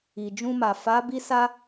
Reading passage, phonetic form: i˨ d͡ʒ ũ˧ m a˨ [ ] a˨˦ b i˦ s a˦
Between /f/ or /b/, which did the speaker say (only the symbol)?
f